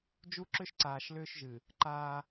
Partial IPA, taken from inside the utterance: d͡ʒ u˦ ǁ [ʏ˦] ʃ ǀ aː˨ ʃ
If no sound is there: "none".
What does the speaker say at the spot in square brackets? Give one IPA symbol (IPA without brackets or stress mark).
ʏ˦